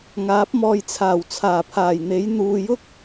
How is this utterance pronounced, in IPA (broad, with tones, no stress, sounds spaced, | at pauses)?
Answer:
ŋ aː˨˥ p̚ m ɔː˧ j t͡sʰ aː˨˩ w t͡sʰ aː˨˩ pʰ aː˨˩ j n̪ e˨˥ j n̪ uː˨ j ʊ˥ k̚